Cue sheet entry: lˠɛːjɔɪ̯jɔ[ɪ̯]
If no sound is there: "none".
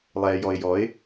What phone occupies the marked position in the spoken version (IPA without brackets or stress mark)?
ɪ̯